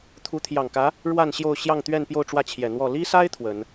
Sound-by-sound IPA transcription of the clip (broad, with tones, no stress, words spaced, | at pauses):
t̪ʰu˧˥t̪ʰjɑ˨˩ŋkä˧˥ | ɻwa˥˧n ɕjo˥˧ʊ̯ ɕjɑ˥˧ŋt̪ɥɛ˥˧npjo˥˧ʊ̯ ʈ͡ʂwä˥˩t͡ɕʰjɛ˨˩ n̪wɔ˥˩ li˥sa˥ɪ̯ t̪ʰwə˨˩˦n